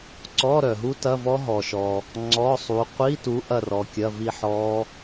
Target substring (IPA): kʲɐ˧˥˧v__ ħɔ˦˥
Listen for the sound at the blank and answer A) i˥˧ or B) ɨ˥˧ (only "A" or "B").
A